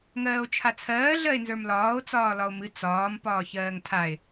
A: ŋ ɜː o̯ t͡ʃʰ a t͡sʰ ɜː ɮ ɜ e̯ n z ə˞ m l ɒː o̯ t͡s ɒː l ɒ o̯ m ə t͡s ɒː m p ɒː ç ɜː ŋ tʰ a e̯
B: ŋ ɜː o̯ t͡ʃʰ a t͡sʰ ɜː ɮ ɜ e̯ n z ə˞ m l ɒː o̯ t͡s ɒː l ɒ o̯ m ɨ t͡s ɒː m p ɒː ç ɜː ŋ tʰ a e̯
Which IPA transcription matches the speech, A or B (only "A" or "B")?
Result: B